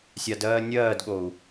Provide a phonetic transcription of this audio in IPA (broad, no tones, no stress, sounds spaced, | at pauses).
sʲ a d ɜː nʲ ɜː d ɠ o u̯